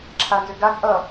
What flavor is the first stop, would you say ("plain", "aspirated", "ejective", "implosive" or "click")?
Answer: click